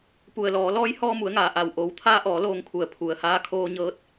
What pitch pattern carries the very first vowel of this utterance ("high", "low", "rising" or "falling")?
low